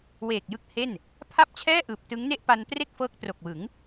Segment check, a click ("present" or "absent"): absent